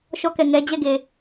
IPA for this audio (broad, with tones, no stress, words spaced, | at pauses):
ʃɔ˦˨kɛ˦˨ŋɛ˦ d͡ʑɛ˦˨ɡe˨